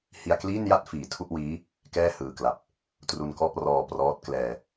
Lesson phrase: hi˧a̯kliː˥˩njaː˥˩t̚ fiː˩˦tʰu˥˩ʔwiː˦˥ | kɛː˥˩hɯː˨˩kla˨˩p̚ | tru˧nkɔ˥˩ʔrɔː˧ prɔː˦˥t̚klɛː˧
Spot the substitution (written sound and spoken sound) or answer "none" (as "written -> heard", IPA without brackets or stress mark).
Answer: aː˥˩ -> a˥˩